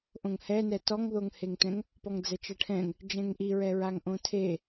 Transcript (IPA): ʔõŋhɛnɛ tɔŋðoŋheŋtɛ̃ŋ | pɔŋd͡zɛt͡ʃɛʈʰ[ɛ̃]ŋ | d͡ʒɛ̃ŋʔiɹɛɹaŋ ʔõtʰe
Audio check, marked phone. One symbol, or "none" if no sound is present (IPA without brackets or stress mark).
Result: ɛ̃